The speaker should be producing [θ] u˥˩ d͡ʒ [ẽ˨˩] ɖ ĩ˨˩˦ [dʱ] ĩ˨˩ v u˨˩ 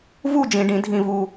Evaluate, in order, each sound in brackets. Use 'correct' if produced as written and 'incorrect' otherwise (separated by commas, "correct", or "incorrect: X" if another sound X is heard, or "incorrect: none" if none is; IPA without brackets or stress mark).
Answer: incorrect: v, incorrect: ĩ˨˩, correct